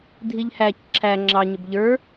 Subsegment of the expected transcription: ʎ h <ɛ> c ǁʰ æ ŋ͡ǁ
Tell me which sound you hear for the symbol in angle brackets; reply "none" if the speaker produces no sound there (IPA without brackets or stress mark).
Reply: æ